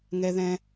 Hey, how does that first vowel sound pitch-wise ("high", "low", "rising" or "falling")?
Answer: high